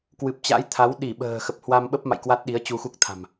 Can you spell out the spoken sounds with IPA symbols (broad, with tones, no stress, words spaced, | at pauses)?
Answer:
kwɨ˨˩p̚t͡ɕa̰˧˥jt̪ʰa˨˦w ɗi˧˩ɓə̤ː˨˩ xə˨˩p̚hwa˧mɓə˦˥p̚ma̰˧˨j kwa˦˥t̚ɗi˨˦ə̯ t͡ɕu˧xu˦˥k̚t̪ʰa̤˨˩m